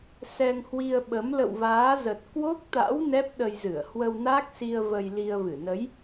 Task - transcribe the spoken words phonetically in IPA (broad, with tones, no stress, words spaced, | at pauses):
sɛ˧ŋhwi˧ə̯ɓə˨˦m lə̰˧˨wvaː˨˦zə˨˩t̚ kwo˦˥k̚t̪a̰˧˥w nɛ˦˥p̚ɗə˧jzɨ˧˩ə̯ hwə˧wna˦˥k̚si˧ə̯ və˧jli˧ə̯vɨ˧˩ nə˨˦j